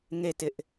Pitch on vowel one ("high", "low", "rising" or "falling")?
falling